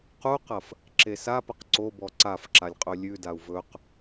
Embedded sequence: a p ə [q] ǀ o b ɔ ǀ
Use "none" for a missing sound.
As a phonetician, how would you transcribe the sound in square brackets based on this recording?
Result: q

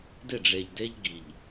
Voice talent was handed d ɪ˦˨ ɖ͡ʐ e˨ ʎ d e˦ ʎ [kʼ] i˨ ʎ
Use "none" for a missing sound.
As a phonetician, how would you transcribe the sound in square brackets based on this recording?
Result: ɡ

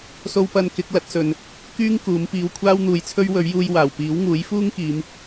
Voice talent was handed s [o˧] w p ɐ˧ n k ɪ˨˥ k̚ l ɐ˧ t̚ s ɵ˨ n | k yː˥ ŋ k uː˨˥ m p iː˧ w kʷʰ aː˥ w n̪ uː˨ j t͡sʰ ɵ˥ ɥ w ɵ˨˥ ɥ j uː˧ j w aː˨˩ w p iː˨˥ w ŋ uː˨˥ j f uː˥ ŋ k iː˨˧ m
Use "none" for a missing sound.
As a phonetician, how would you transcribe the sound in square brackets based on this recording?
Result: o˧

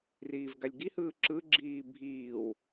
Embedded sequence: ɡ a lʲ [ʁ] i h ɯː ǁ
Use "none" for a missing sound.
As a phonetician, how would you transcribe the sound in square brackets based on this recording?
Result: ɡ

